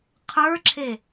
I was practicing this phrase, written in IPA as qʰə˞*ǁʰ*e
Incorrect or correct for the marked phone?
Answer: correct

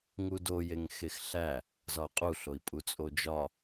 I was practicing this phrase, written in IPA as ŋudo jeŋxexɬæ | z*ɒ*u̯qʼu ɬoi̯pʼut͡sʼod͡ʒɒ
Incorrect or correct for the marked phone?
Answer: correct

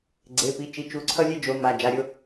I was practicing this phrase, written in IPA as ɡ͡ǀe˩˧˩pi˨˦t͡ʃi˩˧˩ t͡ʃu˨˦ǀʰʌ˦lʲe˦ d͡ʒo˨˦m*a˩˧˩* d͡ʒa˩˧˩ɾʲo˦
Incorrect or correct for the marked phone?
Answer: correct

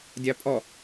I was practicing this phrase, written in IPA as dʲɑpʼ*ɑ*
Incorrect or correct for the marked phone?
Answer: incorrect: ɔ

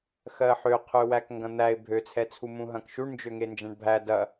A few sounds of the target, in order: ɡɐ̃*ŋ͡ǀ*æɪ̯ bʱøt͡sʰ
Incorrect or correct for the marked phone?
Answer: incorrect: n̪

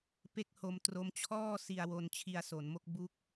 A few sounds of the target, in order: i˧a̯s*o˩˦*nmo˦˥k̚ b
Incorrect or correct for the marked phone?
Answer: correct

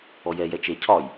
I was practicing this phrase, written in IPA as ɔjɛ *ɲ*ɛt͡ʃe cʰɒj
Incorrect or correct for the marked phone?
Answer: incorrect: j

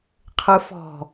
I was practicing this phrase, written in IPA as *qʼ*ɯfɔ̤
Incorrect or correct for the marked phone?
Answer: incorrect: qʰ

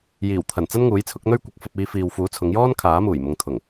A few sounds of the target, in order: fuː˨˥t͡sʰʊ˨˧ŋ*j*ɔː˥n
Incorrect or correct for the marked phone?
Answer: correct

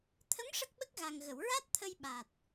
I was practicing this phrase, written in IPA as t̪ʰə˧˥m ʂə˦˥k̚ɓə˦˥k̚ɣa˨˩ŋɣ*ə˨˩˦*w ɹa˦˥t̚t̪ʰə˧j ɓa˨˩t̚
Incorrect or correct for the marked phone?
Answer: incorrect: ə˨˩˨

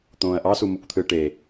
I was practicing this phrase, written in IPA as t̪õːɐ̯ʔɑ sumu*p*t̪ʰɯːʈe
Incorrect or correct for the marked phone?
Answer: incorrect: kʷ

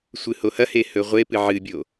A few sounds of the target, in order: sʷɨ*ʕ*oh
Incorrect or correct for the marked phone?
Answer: incorrect: h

